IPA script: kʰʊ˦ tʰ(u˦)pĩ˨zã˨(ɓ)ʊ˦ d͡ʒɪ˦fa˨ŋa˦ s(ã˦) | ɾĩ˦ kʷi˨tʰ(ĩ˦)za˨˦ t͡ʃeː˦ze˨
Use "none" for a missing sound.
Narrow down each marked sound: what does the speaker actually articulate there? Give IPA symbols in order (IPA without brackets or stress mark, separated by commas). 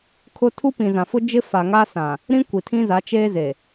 u˦, f, ã˨, ĩ˦